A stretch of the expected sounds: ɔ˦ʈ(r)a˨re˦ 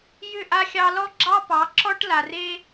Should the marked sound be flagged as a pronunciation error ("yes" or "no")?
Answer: yes